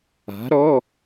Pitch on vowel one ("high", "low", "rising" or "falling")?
rising